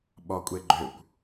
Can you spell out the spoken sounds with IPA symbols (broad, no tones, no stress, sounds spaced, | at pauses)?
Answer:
ɓ ɔ kʷʼ e ɡ͡ǃ ø kʷ